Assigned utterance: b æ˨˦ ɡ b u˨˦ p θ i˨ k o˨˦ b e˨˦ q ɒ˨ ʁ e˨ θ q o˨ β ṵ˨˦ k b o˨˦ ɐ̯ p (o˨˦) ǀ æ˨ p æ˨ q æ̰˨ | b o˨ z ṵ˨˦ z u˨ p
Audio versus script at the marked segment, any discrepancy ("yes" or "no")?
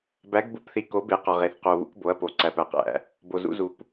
yes